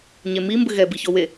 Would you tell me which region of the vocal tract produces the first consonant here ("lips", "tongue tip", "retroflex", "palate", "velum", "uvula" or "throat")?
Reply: palate